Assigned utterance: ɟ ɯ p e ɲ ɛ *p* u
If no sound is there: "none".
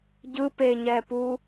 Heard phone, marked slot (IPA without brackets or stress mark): p